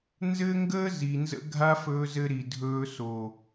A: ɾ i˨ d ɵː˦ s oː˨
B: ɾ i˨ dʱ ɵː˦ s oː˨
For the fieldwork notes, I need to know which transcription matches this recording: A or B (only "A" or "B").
B